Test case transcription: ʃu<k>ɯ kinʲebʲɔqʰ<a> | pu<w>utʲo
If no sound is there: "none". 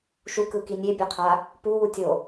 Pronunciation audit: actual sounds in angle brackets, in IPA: k, a, w

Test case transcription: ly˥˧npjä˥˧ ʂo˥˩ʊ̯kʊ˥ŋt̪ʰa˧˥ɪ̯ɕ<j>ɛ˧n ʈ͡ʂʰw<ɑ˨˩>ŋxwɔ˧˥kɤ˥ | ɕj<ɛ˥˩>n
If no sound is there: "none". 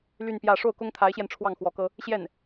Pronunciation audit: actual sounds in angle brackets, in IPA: j, ɑ˥˩, ɛ˥˩

